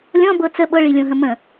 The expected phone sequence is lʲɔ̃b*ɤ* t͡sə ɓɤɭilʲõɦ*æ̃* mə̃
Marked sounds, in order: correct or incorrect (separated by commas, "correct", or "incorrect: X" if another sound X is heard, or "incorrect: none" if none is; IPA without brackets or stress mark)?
correct, incorrect: ə̃